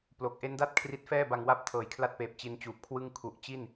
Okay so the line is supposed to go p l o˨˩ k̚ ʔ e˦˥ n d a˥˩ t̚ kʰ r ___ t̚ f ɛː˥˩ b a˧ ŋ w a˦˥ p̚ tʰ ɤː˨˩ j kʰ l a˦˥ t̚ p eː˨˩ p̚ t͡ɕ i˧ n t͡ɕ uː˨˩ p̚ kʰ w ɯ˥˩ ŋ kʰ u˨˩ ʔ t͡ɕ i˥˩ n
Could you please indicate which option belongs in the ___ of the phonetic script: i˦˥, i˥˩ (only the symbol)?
i˦˥